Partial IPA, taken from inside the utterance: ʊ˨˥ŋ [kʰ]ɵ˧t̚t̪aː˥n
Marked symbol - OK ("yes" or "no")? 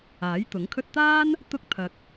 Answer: yes